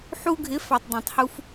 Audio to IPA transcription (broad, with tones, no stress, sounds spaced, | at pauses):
ħ u˧ ɡʱ ɪ˨˦ f ɑ˨ tˤ dˤ ɛ̃˨ tˤ h u˧ f